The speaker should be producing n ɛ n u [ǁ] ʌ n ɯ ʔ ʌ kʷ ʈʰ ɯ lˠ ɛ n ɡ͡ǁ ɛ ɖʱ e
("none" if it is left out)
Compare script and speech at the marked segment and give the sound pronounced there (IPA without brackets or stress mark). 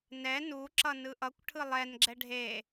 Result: ǁ